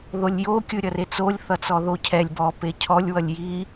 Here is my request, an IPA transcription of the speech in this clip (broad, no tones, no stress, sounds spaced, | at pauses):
ð o lʲ j o kʲ ɯ ɾʲ ʌ r e t͡s o lʲ θ ʌ t͡s ɔ ð o cʰ ɛ lʲ b ɔ p e cʰ ɔ lʲ w ʌ lʲ j i